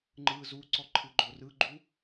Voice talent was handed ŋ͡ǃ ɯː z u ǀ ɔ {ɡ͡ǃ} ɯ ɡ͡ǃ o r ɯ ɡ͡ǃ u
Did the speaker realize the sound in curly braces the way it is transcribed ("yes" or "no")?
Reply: no